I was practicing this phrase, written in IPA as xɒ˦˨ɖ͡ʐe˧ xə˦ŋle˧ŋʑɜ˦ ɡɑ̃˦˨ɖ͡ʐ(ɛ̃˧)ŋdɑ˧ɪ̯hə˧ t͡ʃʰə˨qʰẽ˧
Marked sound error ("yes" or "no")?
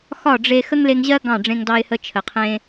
yes